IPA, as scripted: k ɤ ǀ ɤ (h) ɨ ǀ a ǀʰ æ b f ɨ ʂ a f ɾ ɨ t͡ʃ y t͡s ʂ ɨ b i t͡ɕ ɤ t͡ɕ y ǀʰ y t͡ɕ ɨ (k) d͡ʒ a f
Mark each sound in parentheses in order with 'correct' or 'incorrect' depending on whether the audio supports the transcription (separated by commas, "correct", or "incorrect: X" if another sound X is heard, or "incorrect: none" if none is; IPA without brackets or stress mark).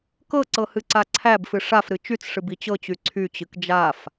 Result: correct, correct